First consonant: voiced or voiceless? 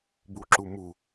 voiced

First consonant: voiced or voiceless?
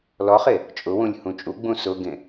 voiced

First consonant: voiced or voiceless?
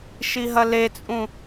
voiceless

